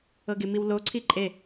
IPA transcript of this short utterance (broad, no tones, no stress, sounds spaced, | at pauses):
ɤ ɡ e m i w l o ǀʰ i ǃʼ e